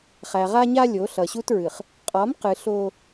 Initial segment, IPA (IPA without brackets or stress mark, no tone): χ